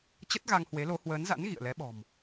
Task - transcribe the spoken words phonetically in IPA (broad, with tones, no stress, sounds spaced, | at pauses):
t͡ɕ ə˦˥ t̚ ɣ a˧ ŋ h w e˨˦ l o˨˦ h w əː˨˦ n z a̰˧˥ n ɣ ḭ˧˨ ə̯ l ɛ˨˦ ɓ ɔ̤˨˩ m